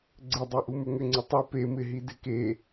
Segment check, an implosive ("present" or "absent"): absent